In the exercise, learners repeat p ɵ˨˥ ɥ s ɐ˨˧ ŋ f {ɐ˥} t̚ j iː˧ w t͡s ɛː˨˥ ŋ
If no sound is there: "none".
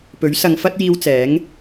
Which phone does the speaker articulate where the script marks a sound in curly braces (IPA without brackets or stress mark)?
ɐ˥